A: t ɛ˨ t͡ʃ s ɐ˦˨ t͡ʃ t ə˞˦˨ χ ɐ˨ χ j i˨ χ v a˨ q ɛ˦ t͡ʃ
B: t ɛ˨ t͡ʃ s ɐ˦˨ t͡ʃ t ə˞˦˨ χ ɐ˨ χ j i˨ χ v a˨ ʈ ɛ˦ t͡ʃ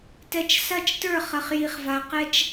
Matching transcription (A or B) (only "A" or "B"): A